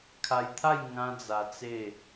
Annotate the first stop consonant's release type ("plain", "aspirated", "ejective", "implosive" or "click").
aspirated